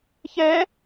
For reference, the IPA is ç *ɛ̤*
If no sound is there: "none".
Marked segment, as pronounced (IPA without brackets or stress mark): ɛ